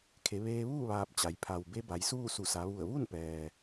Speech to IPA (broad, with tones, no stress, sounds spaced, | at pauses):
kʰ e˩˧ ʋ eː˧ ʋ uː˥˨ ʋ aː˧ p̚ t͡ɕ a˩˧ j pʰ a˩ w b e˧˥ b a˩˧ j s uː˥˨ s u˧˩ s a˩˧ ʋ u˧˩ ə̯ ʋ u˥˨ n p ɛː˩